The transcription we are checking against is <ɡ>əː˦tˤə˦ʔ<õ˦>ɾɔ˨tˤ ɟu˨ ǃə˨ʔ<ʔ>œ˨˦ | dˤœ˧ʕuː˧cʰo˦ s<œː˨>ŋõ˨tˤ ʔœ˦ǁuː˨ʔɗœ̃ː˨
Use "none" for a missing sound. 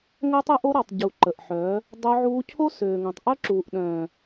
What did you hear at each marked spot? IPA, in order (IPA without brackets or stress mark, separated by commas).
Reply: ŋ, o˦, ħ, øː˨